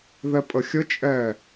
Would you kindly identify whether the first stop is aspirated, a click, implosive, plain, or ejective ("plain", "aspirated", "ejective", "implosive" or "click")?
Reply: ejective